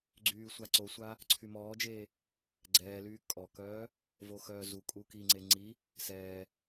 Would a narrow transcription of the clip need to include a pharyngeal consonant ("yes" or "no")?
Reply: no